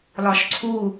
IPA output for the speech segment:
l ɒ ʃ ǀʰ u

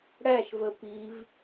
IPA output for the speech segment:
ɽ æ ʃ v ə p i v

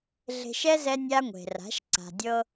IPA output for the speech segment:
ɮ e̤˧ ʃ ɛ˦ z ɛ˦ nʲ a˦ ŋʷ e̤˨ r a̤˨˦ ʃ ǀ a̤˨ dʲ ɤ˧

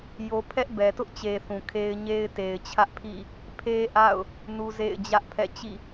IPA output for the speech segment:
j o˦ pʰ ɛ˦ ʔ b ɛ˨ t ʊ˦ ʔ t͡ɕ e˨ θ ũ˨ kʰ e˦ ɪ̯ ɲ e˦ ɪ̯ t e˨ ɪ̯ t͡ɕʰ ä˦ ʔ pʰ ḭ˦˨ | pʰ e˦ ʔ a̰˦˨ ʊ̯ | n u˦ z ḛ˦˨ ɪ̯ d͡ʑ ä˦ ʔ pʰ ɛ̰˦˨ t͡ɕ ḭ˦˨

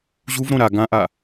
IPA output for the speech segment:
ʑ u v ɾ õ ɾ a ɡ ã ʔ a

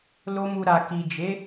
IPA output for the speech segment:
l o˧ m u˨ ɾ a˨ k i˨ d͡ʒ e˨˦

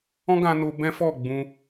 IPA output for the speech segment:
ɔ̃˦ ɡ ã˧ n o˧ b ɛ̃˦ f ɔ˦˨ ɡ͡b ũ˧

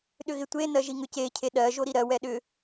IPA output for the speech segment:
ɗ ʏ ɣ ɪ tʷ e n ɜ ʒ i ŋ ʏ c e cʰ e ɗ ɜ ʒ o ɾ i ɾ ɜ w ɛ ɗ ʏ

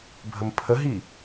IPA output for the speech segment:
bʱ ə m pʰ ə ɦ i

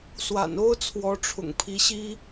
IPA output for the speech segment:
s w a̰˨˩ n o˥ ʊ̯ t͡sʰ w ɔ˧˥ ʈ͡ʂʰ ʊ̰˨˩ ŋ pʰ i˧˥ ɕ i˥

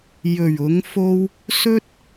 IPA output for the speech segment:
j ɵ˨˩ ɥ ʊ˨˧ ŋ f o˧ w | s ɵ˥ t̚

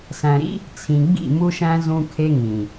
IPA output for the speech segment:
s æ̃˨ ɾ ḭ˦ | t͡sʰ ĩ˨ ɡ͡b ḭ˦˨ m u˦ ʃ æ̃˦ z ũ˦ kʰ e˦ ŋ ĩ˨

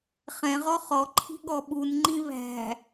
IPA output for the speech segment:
χ ɛ̃ ʁ ɔ χ ɔ ǃʰ i̤ ɠ ɔ ɓ u n ŋ͡ǃ ĩ β æ̤

